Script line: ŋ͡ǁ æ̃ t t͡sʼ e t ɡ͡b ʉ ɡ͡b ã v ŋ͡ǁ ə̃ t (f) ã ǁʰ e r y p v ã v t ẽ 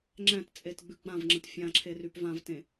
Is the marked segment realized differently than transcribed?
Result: yes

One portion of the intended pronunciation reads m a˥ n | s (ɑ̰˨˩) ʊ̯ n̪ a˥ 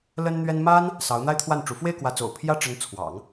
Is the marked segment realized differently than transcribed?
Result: yes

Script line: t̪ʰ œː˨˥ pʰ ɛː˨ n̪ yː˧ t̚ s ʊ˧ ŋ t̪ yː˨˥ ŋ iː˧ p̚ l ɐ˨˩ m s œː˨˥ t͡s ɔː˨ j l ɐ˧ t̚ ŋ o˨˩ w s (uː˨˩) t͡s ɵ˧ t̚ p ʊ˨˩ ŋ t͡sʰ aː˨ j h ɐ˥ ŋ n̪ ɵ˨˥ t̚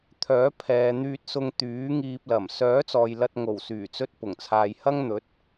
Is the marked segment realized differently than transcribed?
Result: yes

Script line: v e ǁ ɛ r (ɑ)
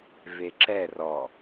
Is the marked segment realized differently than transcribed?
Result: yes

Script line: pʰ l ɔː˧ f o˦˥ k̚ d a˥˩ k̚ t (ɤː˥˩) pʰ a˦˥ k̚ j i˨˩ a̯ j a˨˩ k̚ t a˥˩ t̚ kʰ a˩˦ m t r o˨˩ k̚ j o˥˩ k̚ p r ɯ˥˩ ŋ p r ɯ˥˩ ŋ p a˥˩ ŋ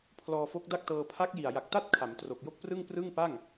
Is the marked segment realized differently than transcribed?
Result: yes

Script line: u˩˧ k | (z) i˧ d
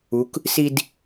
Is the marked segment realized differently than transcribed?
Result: yes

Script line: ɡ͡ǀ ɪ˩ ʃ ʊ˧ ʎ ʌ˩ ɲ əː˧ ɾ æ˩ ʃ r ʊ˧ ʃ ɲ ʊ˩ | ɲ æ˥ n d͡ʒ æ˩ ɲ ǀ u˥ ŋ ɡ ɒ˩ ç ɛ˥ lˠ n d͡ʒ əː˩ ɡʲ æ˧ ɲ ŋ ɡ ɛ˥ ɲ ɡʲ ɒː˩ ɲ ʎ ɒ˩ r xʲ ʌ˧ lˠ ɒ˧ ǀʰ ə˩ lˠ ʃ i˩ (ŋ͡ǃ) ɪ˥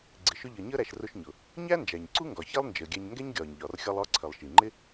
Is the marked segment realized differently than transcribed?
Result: no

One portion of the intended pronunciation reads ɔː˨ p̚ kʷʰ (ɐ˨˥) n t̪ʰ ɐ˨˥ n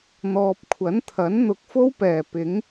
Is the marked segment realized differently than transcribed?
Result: no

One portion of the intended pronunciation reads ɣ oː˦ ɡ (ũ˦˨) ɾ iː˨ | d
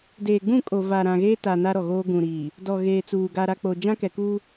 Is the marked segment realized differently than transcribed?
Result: yes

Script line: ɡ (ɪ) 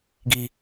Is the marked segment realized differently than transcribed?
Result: yes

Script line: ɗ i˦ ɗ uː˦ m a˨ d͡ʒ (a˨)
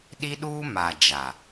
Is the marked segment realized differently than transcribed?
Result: no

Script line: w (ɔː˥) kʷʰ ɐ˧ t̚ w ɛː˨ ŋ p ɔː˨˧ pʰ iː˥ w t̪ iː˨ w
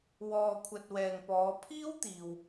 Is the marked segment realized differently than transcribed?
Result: yes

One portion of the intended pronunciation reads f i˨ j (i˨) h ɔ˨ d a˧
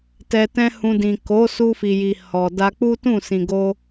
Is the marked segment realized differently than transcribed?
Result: no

